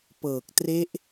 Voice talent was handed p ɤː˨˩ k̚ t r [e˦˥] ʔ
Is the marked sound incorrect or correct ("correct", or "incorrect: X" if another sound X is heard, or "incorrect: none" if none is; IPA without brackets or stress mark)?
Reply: correct